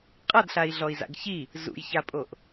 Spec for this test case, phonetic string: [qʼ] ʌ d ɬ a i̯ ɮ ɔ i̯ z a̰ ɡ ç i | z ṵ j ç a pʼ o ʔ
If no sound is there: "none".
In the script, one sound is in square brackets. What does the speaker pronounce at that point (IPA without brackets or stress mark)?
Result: qʼ